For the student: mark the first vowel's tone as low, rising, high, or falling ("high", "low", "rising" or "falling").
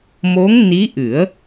rising